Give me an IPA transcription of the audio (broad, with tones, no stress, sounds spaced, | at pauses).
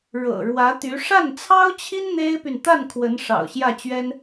ɻ ɤ̰˨˩ ɻ w ä˧˥ t̪ y˧˥ ʂ a˥˩ n t͡sʰ ɑ˥ ʊ̯ t͡ɕʰ i˥ n n̪ e˥ ɪ̯ p y˨ n t̪ a˥˩ n kʰ w ə˧˥ n ʂ ɑ̰˨˩ ʊ̯ ɕ j ä˥˩ t͡ɕ ɥ ɛ˥ n